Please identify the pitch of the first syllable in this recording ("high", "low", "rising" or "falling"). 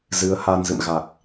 rising